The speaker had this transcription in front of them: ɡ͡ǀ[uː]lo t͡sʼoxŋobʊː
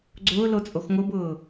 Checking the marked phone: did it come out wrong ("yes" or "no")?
yes